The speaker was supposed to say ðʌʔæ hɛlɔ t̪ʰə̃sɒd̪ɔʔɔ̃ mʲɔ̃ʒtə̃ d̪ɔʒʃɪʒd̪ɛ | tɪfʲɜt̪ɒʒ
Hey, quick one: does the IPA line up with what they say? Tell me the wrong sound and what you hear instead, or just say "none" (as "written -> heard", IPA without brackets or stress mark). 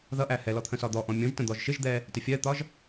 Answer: none